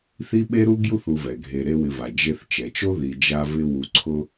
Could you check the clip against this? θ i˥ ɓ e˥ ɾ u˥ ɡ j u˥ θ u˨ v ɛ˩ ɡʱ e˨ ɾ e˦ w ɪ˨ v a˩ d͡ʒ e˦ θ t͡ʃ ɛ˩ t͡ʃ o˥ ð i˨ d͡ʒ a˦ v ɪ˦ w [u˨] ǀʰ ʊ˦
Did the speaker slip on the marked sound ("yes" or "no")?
no